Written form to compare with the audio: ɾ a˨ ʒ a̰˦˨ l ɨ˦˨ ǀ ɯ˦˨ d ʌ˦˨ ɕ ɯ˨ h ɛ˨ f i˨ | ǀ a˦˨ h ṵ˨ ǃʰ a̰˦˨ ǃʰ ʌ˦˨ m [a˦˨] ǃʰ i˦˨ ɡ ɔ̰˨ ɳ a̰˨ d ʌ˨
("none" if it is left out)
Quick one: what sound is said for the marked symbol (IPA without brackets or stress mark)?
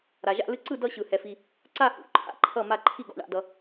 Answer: a˦˨